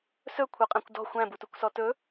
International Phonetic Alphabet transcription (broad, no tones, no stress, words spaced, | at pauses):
sɵkʷʰœqʼæ̃kʷ dɔ̤ xʷæ̃butukʷsɔ tɵ